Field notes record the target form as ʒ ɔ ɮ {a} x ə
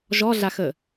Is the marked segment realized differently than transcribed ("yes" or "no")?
no